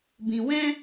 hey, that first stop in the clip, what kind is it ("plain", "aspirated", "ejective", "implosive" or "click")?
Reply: plain